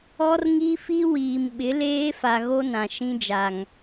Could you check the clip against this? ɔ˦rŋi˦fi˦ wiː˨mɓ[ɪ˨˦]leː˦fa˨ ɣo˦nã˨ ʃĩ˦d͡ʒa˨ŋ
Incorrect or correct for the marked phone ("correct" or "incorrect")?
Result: correct